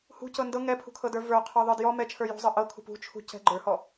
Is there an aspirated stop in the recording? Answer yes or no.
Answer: yes